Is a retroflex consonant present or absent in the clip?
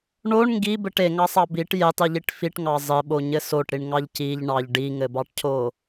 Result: present